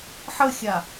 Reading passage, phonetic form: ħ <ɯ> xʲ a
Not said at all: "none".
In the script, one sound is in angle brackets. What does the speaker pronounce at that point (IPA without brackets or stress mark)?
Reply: ə